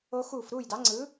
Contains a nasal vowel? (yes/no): no